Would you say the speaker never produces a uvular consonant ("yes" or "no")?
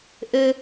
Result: yes